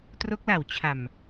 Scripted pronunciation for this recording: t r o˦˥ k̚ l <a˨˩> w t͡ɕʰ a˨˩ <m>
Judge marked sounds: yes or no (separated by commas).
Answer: yes, yes